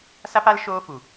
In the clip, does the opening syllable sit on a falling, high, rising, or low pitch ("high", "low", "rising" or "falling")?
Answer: high